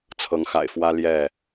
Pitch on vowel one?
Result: rising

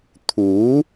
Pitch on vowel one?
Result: rising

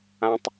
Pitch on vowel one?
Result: high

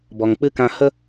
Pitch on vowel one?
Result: low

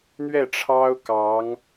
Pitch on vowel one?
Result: falling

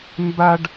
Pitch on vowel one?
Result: high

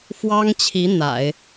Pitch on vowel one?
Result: high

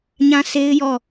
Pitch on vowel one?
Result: high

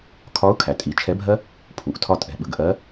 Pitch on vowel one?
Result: rising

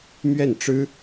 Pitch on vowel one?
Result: falling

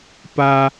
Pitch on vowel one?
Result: low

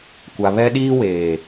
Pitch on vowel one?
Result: low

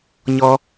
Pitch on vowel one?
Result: high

